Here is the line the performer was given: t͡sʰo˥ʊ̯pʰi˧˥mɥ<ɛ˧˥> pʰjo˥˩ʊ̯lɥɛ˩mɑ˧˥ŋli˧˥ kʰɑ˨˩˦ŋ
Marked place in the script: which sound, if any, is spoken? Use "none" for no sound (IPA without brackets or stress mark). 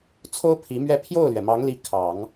ɛ˥˧